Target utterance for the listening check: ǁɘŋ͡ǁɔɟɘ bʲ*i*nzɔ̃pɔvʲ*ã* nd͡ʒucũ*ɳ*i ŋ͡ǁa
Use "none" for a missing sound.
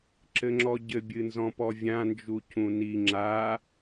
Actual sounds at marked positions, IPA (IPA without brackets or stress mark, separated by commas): ɨ, ã, n